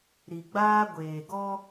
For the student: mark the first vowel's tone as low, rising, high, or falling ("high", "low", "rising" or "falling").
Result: low